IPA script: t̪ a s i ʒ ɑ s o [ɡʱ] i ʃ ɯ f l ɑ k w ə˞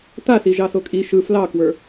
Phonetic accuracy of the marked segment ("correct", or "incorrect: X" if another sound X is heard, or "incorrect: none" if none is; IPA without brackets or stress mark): incorrect: kʼ